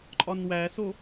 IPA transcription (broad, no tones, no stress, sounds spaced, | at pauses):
ǃʼ ɒ n w æ s o